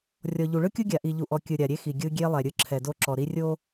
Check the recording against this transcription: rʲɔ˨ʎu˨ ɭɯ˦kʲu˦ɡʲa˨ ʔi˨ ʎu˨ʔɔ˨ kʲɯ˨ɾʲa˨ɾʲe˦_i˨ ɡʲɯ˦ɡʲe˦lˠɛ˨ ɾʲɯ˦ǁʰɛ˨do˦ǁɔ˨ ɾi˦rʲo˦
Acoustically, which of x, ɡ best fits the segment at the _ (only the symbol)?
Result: x